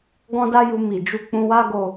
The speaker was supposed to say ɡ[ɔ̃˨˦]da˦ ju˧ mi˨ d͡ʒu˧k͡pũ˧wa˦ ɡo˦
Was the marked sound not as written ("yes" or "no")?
yes